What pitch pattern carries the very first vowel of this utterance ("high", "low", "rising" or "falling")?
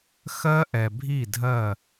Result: high